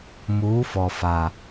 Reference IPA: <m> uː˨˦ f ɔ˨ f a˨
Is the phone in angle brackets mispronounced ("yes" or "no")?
no